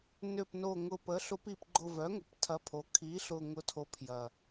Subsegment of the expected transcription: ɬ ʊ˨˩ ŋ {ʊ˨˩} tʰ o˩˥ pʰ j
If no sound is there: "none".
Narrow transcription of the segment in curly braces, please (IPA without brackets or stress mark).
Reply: ʊ˨˩